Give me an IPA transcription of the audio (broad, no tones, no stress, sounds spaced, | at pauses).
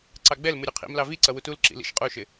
ǀ ɑ ɡ͡b ɛ l m u ɾʲ u qʰ ḭ m l ɑ v i ǀ ʌ w u t u l ǁ ḭ l ḭ ʃ qʼ u ʃ ɪ